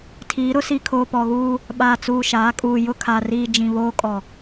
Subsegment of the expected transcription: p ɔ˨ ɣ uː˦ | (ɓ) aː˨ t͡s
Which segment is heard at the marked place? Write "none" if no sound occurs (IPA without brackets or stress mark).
ɓ